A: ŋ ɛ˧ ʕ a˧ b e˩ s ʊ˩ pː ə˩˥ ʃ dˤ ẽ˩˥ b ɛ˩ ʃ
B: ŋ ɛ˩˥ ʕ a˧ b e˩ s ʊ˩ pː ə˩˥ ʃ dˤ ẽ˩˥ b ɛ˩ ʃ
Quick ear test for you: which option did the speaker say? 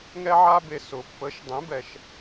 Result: A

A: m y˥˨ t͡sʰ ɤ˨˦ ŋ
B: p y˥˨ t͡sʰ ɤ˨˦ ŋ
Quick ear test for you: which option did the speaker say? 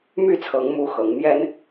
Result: A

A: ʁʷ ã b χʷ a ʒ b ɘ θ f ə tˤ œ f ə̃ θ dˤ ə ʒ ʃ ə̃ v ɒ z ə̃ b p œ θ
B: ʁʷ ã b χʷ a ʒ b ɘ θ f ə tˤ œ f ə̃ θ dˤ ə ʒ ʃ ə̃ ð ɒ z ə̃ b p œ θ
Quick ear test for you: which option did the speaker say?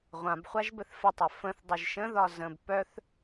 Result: B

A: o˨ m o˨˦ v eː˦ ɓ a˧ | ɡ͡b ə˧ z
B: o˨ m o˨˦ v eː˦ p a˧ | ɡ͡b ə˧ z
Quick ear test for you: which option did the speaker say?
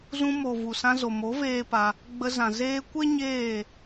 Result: B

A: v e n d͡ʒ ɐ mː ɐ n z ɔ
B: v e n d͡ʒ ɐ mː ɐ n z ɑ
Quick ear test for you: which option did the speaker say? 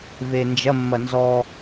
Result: A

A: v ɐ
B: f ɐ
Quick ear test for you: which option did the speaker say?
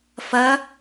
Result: B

